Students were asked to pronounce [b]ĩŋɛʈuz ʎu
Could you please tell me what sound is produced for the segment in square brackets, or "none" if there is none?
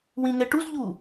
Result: w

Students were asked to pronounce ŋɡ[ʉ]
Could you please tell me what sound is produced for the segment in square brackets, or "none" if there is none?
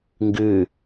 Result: ʉ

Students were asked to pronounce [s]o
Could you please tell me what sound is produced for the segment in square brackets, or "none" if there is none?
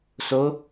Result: s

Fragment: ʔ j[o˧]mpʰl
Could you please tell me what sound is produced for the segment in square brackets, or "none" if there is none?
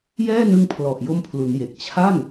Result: o˧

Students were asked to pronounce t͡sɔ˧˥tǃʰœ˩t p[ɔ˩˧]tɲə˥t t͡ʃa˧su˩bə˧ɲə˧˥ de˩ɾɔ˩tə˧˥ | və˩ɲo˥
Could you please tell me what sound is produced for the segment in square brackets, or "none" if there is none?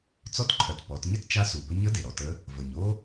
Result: ɔ˩˧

